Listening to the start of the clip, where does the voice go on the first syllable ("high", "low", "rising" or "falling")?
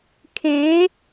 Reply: rising